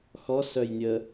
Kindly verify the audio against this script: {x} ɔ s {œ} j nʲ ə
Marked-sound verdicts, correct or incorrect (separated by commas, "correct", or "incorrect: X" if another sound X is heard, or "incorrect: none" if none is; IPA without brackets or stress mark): correct, correct